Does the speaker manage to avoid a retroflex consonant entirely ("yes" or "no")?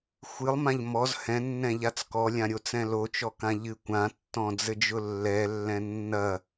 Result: yes